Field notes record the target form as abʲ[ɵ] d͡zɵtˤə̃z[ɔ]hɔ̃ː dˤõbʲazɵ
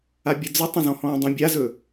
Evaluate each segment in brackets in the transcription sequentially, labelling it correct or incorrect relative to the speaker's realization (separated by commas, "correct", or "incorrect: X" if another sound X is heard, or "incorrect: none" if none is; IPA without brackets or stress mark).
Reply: incorrect: ə, incorrect: ɔ̃